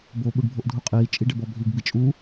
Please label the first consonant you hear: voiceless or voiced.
voiced